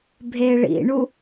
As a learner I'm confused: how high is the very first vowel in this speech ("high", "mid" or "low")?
mid